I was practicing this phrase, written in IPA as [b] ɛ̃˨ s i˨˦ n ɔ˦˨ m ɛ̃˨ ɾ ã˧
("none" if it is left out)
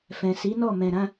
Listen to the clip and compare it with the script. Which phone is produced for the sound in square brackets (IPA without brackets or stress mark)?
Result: f